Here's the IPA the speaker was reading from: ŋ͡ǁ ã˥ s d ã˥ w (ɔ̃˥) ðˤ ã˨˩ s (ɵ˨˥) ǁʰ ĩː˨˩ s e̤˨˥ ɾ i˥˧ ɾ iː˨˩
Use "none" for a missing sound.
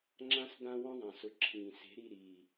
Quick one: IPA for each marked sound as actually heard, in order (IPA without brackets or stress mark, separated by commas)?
ɔ̃˥, ʊ˨˥